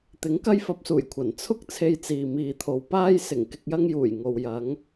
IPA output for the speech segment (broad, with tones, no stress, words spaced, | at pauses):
t̪ɪ˨˥ŋkɐ˥jfɐ˧p̚suː˨˩j kʷʰɐ˨˩n t͡sʰʊ˥k̚ t͡sʰe˧jt͡siː˨ miː˨t̪ʰo˨w paː˧j sɪ˨˩ŋ kɪ˨k̚jɐ˧ŋjuː˨˩j ŋo˨wjɐ˨˧ŋ